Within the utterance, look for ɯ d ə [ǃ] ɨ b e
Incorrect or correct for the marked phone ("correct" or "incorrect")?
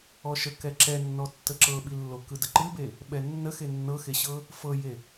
correct